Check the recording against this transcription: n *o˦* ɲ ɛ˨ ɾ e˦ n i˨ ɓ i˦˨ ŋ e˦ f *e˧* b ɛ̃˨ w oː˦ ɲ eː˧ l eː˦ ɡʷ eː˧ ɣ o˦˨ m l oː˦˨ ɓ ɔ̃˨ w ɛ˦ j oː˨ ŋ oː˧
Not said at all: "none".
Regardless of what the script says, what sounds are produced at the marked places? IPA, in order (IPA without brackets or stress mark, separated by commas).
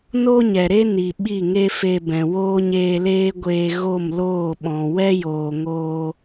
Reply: o˦, e˧